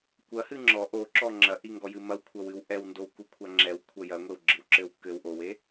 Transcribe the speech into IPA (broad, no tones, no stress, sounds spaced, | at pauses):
kʷ ɐ h ɨ ŋ͡ǁ ɔ ʔ o ǁ ɔ ŋ͡ǁ ɐ ʔ i ŋ ɡ ɔ j ɨ m ɐ w kʷʰ ɐ w ɨ w ʔ ɛ w n d o w k u kʷʰ a ŋ͡ǁ ɛ w kʷʰ ɐ j ɐ ŋʷ e w ɡ͡ǁ ɨ w ǁ ɘ w k ɘ w ʔ o w e